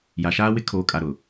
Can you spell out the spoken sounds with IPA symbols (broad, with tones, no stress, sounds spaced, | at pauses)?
j a˨ ʃ aː˦ w ɪ˦ kʰ oː˨ kʼ a˨ ɾ ʊ˨